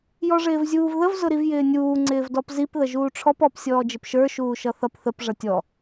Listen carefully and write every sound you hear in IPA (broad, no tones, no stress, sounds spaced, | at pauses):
j ɔ ʐ ɪː v zʲ uː v ð ə v z ʊ ɾ i v j ɪː nʲ uː ŋ͡ǀ ɪː v d ɔ p z i p ð ə ʒ uː ʈ͡ʂʰ ɔ p ɔ p sʲ ɔː d͡ʒ ɪ p ʃ ə˞ ʃ uː ʃ ʌ θ ʌ p θ ə p ʐ ʌ tʲ ɔ